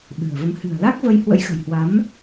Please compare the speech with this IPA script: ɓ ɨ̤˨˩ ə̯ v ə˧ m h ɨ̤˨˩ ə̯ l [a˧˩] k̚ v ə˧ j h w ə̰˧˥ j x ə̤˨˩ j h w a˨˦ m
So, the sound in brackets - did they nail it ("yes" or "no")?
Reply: no